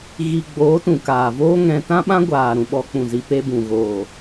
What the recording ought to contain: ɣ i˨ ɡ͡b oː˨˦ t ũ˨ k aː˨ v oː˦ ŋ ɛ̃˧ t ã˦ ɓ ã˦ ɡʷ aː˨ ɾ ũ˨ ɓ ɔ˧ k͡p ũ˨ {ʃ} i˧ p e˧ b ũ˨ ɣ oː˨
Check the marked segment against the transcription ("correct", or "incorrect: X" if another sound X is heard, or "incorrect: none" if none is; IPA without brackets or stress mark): incorrect: z